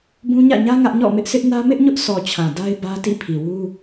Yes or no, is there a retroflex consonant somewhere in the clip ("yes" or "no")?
no